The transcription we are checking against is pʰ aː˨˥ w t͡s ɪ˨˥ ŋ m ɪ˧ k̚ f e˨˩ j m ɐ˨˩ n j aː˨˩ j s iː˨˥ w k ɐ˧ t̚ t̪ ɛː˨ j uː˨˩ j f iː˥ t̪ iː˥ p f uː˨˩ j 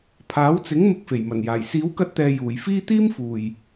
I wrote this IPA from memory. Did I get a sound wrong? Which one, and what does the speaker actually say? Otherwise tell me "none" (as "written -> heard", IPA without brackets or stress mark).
p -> m